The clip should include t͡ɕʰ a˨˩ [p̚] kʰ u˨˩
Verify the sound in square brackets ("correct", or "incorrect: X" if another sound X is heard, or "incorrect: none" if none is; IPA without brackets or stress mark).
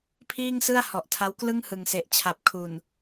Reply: correct